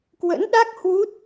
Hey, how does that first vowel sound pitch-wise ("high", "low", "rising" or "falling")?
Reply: rising